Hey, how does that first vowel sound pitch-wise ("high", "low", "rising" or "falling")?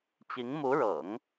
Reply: rising